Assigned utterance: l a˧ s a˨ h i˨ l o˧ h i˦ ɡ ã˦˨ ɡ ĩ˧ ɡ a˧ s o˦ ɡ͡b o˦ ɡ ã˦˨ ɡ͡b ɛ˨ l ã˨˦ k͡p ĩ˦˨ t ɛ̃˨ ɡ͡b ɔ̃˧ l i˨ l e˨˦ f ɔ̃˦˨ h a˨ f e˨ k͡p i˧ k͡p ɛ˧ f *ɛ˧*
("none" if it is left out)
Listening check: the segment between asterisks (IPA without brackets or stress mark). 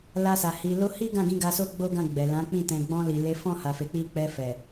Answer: ɛ˨